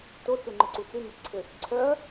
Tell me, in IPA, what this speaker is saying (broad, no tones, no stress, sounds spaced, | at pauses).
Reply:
t o t͡s u ŋ͡ǃ ɘ ǀ u t͡s ʉ m œ t͡ʃ ǀʰ ɘ | ǀʰ œ ɐ̯